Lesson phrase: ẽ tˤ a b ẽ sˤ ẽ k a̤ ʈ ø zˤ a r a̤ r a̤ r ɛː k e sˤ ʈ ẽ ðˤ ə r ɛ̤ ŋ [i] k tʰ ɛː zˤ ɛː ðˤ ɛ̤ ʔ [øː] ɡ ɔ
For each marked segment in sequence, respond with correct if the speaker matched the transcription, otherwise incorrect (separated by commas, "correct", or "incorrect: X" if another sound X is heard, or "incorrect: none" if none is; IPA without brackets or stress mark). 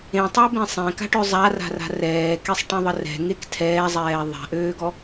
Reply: incorrect: e, correct